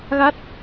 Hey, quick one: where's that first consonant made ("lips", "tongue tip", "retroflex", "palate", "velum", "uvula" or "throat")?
velum